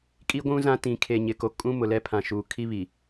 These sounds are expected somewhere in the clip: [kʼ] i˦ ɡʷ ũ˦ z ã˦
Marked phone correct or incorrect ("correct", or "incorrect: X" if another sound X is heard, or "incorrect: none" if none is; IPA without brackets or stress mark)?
correct